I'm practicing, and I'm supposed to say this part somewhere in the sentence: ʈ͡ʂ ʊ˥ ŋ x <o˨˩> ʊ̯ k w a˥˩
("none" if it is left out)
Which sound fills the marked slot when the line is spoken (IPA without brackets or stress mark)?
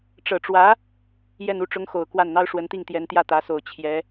o˨˩